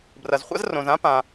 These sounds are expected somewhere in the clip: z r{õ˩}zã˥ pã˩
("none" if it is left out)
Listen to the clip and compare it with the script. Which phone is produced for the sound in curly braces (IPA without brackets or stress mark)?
õ˩